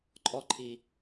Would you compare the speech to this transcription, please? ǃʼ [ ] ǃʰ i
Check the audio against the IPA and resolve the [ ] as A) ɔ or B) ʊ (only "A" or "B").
A